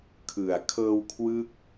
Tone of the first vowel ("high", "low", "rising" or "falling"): low